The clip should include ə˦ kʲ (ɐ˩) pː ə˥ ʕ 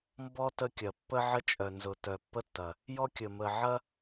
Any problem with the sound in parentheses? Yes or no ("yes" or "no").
no